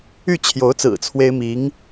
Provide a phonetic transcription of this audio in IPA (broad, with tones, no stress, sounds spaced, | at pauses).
y˥˩ t͡ɕʰ j o˧˥ ʊ̯ t͡s ɹ̩˨˩ t͡sʰ w e˥ ɪ̯ m i˧˥ ŋ